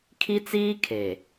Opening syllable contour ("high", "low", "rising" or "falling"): high